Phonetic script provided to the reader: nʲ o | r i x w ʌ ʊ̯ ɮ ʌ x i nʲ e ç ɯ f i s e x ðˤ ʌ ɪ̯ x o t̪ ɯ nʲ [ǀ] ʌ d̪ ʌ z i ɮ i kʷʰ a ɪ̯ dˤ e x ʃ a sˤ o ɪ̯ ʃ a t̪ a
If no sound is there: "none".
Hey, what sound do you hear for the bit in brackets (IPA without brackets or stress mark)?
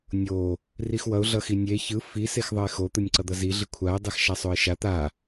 ǀ